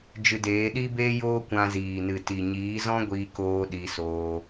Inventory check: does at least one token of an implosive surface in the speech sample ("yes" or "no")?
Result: yes